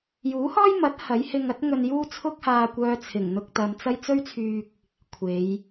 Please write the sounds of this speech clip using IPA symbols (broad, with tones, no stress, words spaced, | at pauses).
juː˨˥hɔː˥j mɐ˨˥t̚ hɐ˨˥jhɪ˧ŋɐ˥t̚ ŋɵ˧njuː˥t͡sʰʊ˥k̚ haː˧kʷœː˧ t͡sʰɪ˨˩ŋn̪ʊ˧k̚t̪ɐ˨m t͡sɐ˥j t͡sɵ˥ɥt͡sʰyː˧k̚ | kʷʰe˨˧j